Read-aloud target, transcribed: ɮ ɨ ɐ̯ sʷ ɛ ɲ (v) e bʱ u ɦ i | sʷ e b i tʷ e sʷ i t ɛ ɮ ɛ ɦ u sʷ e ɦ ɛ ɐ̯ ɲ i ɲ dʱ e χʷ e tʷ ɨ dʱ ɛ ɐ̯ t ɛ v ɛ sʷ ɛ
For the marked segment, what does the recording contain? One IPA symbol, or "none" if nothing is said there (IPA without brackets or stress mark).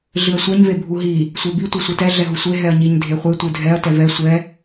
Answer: v